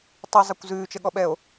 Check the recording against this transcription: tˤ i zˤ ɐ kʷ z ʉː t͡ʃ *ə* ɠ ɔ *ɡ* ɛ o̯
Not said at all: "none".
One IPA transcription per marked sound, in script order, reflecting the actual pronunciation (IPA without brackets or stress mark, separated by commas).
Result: ə, ɓ